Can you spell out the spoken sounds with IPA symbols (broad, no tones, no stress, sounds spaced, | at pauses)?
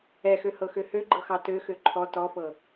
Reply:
ɛ x ø h ɤ x ø h ø ɡ͡ǃ ɤ x ɑ t ø x ø ǃʰ ɔ t ɔ f ɤ